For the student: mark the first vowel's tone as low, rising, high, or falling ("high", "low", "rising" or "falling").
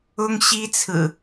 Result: high